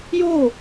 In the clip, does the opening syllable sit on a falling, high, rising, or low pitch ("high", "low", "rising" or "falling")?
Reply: falling